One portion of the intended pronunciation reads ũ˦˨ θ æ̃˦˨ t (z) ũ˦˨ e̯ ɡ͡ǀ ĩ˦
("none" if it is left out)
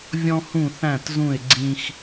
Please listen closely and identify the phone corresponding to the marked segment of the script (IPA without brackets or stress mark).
z